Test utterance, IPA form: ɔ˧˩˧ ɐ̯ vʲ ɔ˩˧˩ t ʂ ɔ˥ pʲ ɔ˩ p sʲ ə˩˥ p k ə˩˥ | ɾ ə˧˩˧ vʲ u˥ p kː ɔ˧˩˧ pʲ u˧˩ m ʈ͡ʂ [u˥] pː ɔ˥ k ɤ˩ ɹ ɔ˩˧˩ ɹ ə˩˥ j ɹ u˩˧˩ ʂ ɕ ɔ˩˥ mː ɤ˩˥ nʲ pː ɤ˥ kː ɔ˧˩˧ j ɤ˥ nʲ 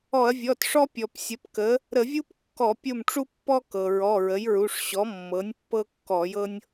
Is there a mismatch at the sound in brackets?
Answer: no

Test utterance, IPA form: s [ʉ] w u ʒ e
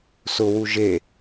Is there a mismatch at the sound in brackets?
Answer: yes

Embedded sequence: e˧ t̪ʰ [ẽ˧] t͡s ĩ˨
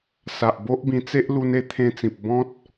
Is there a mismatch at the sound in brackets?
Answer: no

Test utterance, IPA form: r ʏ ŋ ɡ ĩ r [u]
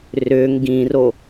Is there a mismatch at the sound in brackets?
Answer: yes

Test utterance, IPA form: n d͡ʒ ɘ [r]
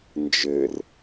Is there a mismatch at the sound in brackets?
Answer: no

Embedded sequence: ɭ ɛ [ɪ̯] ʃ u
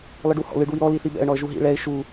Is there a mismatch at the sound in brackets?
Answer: no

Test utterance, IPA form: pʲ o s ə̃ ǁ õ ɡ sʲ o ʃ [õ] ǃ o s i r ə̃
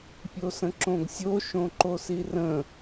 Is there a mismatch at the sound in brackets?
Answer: no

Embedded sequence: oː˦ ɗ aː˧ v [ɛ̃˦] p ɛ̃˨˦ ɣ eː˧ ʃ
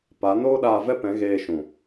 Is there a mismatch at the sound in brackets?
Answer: yes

